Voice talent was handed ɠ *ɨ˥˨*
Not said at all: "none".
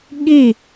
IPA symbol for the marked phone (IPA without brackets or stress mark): i˥˨